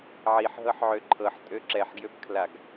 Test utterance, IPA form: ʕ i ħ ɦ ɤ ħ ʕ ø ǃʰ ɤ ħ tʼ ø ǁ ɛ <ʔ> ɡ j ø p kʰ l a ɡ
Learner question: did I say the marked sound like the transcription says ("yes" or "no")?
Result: no